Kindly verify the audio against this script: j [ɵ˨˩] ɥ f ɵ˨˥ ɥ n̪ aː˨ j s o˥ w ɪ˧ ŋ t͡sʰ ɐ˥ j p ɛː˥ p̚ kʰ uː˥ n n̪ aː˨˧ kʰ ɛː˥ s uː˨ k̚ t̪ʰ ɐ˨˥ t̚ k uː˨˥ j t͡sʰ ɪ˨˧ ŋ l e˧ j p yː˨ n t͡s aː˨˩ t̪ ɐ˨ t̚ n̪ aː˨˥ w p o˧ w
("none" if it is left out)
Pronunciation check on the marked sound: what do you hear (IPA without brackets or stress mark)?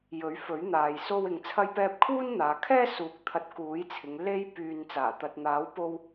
ɵ˨˥